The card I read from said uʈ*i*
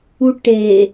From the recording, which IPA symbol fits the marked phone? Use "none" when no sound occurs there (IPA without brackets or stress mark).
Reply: e